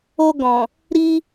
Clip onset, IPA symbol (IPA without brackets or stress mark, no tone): o